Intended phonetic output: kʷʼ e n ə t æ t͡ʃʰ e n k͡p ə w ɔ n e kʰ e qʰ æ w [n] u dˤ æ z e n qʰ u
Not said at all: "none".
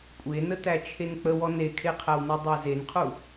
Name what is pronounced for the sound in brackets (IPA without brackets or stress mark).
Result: n